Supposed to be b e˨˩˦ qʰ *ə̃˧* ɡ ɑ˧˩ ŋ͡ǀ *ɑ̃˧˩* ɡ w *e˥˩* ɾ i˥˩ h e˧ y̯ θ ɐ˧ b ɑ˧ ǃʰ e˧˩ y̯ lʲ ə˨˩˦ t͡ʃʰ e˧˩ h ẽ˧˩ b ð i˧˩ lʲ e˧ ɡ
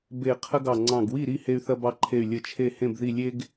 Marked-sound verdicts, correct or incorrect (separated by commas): incorrect, correct, incorrect